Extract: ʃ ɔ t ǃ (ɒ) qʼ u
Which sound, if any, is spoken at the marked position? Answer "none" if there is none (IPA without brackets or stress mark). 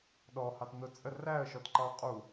ɑ